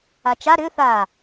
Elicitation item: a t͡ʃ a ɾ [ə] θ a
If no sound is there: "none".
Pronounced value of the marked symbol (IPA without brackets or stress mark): ʏ